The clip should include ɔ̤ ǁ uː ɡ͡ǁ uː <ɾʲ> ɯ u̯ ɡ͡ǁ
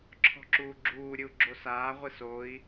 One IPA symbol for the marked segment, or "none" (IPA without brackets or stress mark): ɾʲ